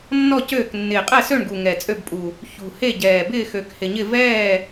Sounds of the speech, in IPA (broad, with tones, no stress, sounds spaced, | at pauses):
nː ɔ˥˨ c øː˥˨ k nː ɪː˨˩ qʼ ɛ˥˨ s ø˥˨ ɳ ɡ u˨˩ ŋ ɛ˨˩ t͡sʼ ø˥˨ b pʼ u˨˩ | ç ṳ˨˩ h e˥˨ ɟ ɛː˨˩ b ɪː˥˨ x ø˨˩ k h ɪ˨˩ ɲ ɪ˥˨ v ɛː˥˨